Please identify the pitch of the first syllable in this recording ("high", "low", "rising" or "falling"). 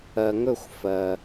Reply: low